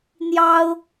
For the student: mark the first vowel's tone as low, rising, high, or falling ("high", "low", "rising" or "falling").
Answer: high